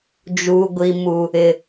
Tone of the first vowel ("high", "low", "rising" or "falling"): high